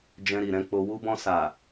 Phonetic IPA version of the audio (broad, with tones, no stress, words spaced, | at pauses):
d͡ʒɛ̃˧ɾi˨ɾɛ̃˧k͡po˧ wu˧bɔ̃˧ sa˨